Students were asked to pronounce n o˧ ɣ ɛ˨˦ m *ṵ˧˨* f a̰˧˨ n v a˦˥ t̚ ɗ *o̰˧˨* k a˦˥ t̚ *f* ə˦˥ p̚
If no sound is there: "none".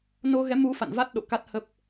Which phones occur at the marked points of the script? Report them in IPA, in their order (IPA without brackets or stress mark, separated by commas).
u˨˦, o̰˧˨, h